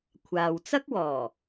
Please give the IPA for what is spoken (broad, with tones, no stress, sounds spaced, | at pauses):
kʷʰ aː˨ w t͡s ɐ˥ k̚ w ɔː˨˩